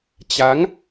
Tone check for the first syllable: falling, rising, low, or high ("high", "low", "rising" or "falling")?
rising